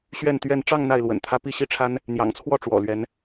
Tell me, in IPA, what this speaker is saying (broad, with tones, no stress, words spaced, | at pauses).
ɕɥɛ˥˨nt̪ɥɛ˥˨n ʈ͡ʂɑ˥˨ŋ n̪a˥˨ɪ̯lwə̰˨˩nt̪ʰä˦ pi˥˨ɕi˦ʈ͡ʂʰa˦n | n̪jɑ̰˨˩ŋt͡sʰwɔ˥˨ ʈ͡ʂwɔ̰˨˩lɥɛ˨˦n